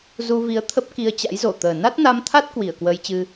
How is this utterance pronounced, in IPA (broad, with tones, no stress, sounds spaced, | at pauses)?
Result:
z u˧ v i˨˦ ə̯ t̪ʰ ə˦˥ p̚ k i˧ ə̯ t͡ɕ a̰˧˥ j z o˧˩ t̪ əː˨˩ n a˦˥ t̚ n a˧ m t̪ʰ a˦˥ t̚ k w i˧˩ ə̯ k w əː˧ j t͡ɕ ɨ˧